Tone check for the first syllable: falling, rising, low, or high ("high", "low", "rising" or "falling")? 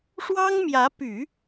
high